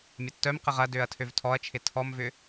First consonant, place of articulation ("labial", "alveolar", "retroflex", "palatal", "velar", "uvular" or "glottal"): labial